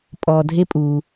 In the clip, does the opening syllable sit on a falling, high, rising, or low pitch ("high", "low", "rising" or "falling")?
low